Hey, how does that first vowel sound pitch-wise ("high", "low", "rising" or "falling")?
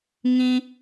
high